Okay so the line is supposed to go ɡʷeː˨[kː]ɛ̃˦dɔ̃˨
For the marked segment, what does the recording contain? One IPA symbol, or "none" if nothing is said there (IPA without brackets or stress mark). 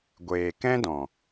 k